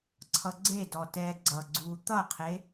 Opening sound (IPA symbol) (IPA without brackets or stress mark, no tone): ǀʰ